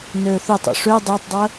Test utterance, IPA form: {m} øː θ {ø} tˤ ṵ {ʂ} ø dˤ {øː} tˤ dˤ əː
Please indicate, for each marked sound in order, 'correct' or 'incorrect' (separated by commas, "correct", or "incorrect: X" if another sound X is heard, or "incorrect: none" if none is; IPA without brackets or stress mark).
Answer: incorrect: n, correct, correct, incorrect: əː